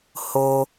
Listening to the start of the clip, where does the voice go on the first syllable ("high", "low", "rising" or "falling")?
high